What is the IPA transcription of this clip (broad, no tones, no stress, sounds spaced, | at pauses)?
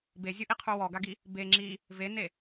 b e zʲ o ʔ i qʰ u w ɔ ɡ a ɡ i | b e ŋ͡ǁ i | v e n e